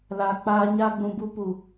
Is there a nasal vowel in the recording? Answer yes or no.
yes